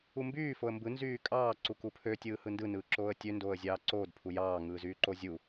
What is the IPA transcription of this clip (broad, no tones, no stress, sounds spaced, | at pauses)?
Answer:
u m b yː f o ə̯ m b ɯ n z yː kʼ ɑː ǀ u k u pʰ ø tʲ ɯː h ɯ n d ɯ n ɯː ǁ oː ə̯ tʲ ø n d oː ə̯ zʲ ɑː ǀ oː d pʰ u j ɑː ŋ ɯː z yː ǃ o zʲ u